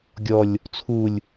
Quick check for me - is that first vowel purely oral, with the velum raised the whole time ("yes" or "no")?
yes